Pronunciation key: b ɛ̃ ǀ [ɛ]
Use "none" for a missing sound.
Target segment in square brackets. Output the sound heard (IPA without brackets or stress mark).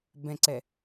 ɛ